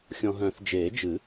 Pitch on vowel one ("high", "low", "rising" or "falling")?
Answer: low